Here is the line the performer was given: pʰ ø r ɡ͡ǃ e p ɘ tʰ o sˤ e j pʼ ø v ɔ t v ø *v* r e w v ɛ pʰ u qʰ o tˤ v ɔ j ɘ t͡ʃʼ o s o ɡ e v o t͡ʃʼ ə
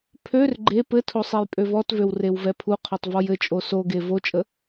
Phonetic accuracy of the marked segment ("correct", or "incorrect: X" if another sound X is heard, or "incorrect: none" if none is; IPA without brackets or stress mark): incorrect: w